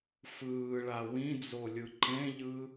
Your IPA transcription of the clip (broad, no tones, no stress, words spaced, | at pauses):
fɯːɭa wĩd͡zolʲɯ ǃẽʎɯ